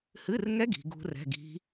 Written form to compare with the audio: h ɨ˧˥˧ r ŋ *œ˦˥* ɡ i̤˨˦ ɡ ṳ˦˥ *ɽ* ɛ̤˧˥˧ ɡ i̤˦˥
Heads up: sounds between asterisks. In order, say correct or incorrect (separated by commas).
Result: incorrect, incorrect